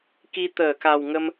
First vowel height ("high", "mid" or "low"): high